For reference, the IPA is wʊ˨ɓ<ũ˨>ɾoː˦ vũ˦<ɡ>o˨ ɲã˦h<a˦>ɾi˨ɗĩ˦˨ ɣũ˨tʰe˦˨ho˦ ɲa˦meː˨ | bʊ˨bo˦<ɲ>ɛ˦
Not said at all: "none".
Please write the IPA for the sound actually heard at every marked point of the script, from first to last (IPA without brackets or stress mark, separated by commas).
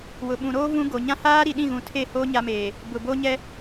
ũ˨, ɡ, aː˦, ɲ